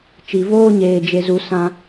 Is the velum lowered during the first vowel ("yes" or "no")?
no